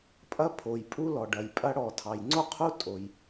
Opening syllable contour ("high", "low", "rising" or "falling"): high